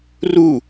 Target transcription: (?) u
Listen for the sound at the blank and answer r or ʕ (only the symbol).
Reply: r